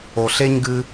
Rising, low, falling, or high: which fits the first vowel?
low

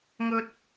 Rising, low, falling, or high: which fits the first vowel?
high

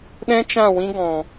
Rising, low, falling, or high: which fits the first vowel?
high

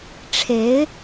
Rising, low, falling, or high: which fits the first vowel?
rising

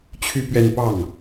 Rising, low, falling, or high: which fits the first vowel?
high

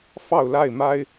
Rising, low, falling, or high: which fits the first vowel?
falling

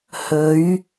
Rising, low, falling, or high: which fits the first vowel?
rising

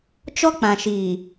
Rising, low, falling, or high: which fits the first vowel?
high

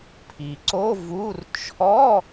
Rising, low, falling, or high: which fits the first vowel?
low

